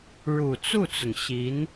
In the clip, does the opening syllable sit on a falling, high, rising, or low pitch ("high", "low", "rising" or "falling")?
low